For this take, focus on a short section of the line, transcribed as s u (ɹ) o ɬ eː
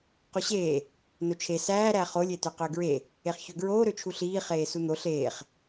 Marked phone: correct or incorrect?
incorrect